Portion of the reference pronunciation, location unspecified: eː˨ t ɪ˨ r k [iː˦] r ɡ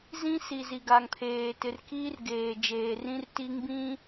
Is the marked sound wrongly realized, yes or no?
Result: no